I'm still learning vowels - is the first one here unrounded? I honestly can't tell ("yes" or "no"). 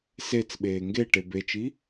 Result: yes